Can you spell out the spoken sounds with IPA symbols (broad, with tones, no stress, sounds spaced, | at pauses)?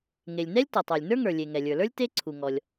ŋ e˩ lʲ n ɛ˥ lʲ t ʌ˩ tˤ ə˞˩ lʲ n ə˞˥ ŋ ə˞˩ lʲ e˩ ŋ ɛ˩ lʲ ə˞˩ l ə˞˥ lʲ t e˥ ǀʰ u˩ ŋ ɔ˩ lʲ